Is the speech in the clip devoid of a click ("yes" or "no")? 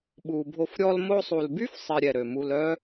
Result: yes